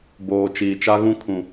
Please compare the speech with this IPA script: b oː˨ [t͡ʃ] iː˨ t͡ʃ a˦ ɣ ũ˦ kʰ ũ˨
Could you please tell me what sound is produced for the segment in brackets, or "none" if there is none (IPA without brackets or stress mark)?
t͡ʃ